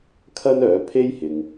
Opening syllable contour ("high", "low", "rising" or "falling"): high